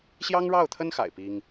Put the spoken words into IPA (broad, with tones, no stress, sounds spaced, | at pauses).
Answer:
ɕ j ɑ˥ ŋ ɻ ɑ˥˩ ʊ̯ t̪ʰ ə˥ n x a̰˨˩ ɪ̯ p i˥ ŋ